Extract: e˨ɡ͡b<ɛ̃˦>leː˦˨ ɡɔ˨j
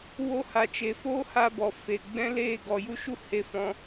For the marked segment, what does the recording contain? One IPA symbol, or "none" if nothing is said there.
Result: ɛ̃˦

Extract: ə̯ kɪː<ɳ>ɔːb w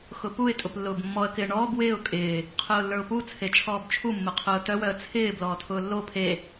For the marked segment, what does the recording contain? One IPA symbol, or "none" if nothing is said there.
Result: ɳ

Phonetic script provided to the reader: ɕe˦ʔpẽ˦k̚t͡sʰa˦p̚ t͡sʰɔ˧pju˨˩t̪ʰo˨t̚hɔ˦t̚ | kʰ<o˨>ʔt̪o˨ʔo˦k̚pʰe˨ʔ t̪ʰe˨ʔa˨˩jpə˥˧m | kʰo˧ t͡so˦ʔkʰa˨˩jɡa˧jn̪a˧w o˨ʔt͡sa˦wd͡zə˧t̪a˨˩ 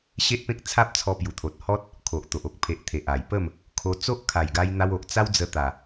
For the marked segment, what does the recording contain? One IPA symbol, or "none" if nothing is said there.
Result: o˨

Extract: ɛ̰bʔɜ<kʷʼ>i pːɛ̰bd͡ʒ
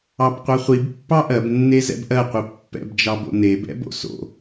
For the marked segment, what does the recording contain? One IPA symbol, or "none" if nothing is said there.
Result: qʷ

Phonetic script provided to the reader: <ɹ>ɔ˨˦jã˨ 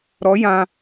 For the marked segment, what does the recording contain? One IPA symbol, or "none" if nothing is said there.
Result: ɾ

